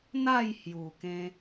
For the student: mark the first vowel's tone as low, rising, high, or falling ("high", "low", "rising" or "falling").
falling